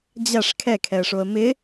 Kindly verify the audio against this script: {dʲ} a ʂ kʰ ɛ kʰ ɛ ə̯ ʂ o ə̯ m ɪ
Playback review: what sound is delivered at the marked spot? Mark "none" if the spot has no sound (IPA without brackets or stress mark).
d͡ʑ